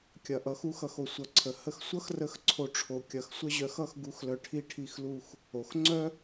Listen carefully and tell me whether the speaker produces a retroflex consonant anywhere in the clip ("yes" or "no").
yes